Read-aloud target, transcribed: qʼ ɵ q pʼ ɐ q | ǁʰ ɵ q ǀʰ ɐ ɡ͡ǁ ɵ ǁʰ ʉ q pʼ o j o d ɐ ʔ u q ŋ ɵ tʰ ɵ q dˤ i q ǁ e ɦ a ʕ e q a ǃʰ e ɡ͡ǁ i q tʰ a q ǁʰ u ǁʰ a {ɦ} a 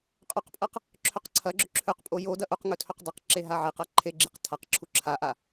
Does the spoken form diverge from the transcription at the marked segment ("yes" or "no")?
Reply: yes